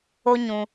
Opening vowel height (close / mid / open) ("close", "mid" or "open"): mid